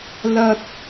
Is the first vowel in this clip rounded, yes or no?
no